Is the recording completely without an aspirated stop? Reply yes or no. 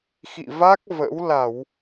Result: yes